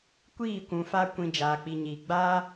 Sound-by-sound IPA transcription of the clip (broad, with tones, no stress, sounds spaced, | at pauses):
kʷ iː˦˨ kʷ ũ˨ f a˧ kʷ ĩ˨ d͡ʒ aː˨ k͡p i˨ ɲ iː˨ ɡ͡b aː˦